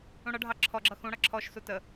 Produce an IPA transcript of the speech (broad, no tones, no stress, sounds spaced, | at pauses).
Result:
ũ ɽ ʌ ɖʱ ɑ ǁʰ ɔ ɡ͡ǁ ʌ x ũ ɽ ʌ ǁʰ ɔ ʃ s u t ə